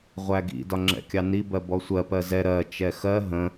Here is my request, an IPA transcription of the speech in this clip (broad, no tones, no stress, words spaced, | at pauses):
ʁʷæɡḭ dɒŋ͡ǁɛ̰kʲɑni bɜbɔsʷɜ pɜzɛ ɾɜ t͡ʃɛxɜ ɦə̃